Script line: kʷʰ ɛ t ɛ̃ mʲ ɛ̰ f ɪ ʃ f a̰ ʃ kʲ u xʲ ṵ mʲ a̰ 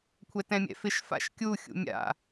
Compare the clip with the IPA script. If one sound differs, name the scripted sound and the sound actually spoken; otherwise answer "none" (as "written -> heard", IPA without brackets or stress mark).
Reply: none